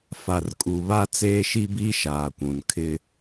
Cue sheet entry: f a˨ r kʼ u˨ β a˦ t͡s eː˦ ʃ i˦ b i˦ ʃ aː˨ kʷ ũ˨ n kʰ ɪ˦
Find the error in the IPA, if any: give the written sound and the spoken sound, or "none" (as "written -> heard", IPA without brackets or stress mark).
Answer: none